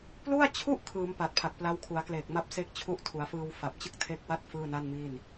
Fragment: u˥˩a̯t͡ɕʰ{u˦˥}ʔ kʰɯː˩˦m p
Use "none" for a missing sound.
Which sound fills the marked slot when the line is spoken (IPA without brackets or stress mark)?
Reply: u˥˩